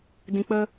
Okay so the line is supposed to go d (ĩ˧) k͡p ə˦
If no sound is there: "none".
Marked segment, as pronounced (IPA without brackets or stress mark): ĩ˧